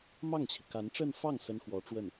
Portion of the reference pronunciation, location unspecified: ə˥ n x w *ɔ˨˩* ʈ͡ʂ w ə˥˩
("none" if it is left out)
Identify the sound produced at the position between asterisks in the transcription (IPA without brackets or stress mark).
ɔ˧˥